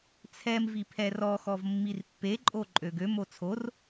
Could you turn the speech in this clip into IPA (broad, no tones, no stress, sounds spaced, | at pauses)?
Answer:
t͡sʰ ɛ m v i pʰ ɛ r ɔ x ɔ v mː i r pː e ǃʼ o ǃʼ ø ɡ ø m o t͡sʰ o r